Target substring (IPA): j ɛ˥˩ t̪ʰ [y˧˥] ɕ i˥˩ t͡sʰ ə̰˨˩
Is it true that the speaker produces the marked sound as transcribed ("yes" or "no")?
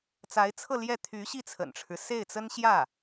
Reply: yes